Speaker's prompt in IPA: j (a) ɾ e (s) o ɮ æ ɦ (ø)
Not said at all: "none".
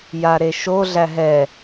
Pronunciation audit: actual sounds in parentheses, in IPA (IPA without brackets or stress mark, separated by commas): a, ʃ, ɛ